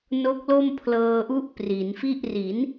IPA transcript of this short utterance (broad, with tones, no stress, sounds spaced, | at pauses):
n o˦˥ k̚ l o˥˩ m pʰ l ɤː˧ ʔ u˦˥ ʔ p r i˩˦ n f i˥˩ ʔ r i˩˦ n